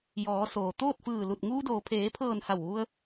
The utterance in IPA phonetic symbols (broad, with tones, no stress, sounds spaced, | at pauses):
j ɔː˩˧ s oː˩ t̪ oː˥˨ t̚ f ɯː˧˩ l u˧˩ t̚ ŋ uː˧ d oː˩ pʰ eː˩˧ pʰ ɤː˧˩ n h a˧˩ w ʋ u˧ ə̯